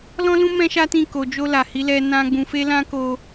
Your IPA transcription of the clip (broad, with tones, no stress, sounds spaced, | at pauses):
l ɔ̃˦ l ũ˦ m ɛ̃˦ ʃ a˦ t ĩ˦˨ k o˨ d͡ʒ o˧ l a˨ h i˨˦ l ɛ˧ n ã˧ ɡ͡b ũ˨ f e˧ l ã˧ k o˧